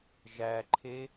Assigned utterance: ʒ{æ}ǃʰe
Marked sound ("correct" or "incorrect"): correct